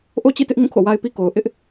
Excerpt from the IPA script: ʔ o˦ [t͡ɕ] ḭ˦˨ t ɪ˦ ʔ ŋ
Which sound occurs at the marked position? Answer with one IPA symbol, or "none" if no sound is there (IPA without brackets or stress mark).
t͡ɕ